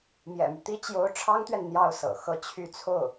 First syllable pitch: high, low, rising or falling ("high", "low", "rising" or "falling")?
low